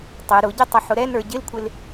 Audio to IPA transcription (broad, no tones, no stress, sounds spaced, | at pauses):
tˤ ɪ ɾ ʊ ɟ ɪ tˤ ə ħ ʊ ɾ ɛ n ə˞ ɟ ɪ l kʷʰ ɪ l